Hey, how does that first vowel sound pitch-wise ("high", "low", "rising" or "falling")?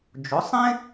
rising